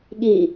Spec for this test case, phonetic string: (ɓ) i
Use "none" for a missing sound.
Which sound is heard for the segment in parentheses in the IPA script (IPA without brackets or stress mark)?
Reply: ɠ